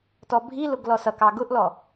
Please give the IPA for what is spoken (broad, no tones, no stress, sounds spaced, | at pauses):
t ɔ bʱ i l ʊ ɡ l ɔ s ʌ k ɑ ɡ ʊ ʔ l ɔ